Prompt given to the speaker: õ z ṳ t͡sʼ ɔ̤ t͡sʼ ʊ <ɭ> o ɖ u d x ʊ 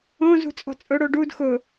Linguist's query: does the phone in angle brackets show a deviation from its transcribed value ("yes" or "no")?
yes